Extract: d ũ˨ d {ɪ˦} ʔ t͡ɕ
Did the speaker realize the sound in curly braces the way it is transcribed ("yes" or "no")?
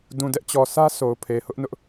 no